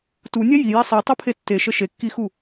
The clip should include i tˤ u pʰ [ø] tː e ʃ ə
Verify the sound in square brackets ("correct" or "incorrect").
incorrect